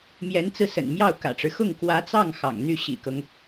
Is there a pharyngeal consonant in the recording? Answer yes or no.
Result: no